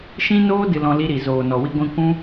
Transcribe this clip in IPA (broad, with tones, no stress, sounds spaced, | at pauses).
ʃ ĩ˦ n oː˦ d ɨ˧ l ɔ̃˧ l i˧ ɾ i˨ z oː˨ n ɔ˨ w i˧ ɡʷ ĩ˧ kʷ ũ˦